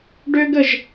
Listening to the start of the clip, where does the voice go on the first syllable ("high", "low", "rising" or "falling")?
high